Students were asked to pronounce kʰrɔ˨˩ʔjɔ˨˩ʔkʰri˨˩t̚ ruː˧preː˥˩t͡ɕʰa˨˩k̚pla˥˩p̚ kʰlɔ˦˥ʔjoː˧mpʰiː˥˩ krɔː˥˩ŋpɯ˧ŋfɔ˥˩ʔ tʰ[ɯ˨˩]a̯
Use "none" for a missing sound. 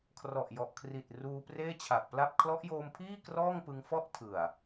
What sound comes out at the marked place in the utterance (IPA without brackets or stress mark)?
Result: ɯ˨˩